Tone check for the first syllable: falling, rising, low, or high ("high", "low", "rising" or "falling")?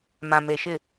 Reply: low